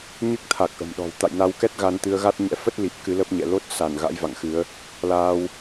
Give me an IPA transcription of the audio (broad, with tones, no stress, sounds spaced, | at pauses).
ɲ ɨ˦˥ k̚ t̪ʰ a˨˩ k̚ ʔ ə̤˨˩ m ɗ ɔ̤˨˩ w t̪ a̰˧˨ j n a˧ w k ɛ˦˥ t̚ ɣ a˧ n t̪ ɨ˧ ə̯ ɣ a˦˥ t̚ ɲ ɛ̰˧˥ f ə˦˥ t̚ l i˨˩ p̚ k ɨ˨˦ l ə˦˥ p̚ ɲ ɛ̰˧˨ l o˦˥ t̚ s a˧˩ n ɣ a̰˧˥ j v a̰˧˨ ŋ x ɨ˨˦ ə̯ | l aː˧ w